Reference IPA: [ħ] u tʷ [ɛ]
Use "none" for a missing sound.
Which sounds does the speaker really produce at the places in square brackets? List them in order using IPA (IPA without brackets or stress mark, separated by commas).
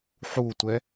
ħ, ɛ